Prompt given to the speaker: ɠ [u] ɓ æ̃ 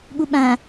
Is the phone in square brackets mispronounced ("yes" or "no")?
no